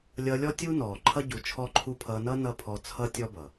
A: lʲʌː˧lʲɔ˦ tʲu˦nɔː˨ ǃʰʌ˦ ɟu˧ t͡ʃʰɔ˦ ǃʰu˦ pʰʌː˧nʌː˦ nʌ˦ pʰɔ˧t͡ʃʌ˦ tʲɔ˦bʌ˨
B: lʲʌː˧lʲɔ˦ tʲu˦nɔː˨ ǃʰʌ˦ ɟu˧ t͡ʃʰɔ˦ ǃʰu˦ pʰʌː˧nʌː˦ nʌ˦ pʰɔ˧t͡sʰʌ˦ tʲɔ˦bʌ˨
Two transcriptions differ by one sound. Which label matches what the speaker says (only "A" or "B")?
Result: B